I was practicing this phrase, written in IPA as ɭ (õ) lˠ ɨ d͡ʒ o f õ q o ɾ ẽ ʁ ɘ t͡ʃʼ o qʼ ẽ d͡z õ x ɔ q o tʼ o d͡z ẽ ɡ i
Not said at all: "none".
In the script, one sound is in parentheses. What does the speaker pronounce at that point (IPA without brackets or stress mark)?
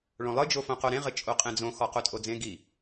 õ